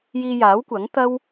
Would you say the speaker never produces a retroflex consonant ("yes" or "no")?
yes